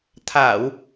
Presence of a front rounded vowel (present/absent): absent